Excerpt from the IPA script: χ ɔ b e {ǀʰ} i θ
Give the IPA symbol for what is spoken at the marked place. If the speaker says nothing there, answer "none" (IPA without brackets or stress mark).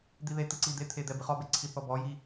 ǀʰ